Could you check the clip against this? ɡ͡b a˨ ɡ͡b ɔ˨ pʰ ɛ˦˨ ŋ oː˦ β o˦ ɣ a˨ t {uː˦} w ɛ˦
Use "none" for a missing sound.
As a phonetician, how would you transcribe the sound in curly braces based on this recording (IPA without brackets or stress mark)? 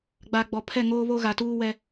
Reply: uː˦